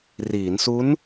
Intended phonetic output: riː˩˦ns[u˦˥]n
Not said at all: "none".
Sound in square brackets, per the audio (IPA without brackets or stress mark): u˦˥